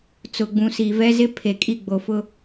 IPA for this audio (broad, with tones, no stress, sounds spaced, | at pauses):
t͡s ʊ˨ ɡ͡b ũ˨ s i˨ v ɛ˦ z ɪ˦ pʰ e˨ kʼ i˦˨ ɡ͡b o˨ f ʊ˦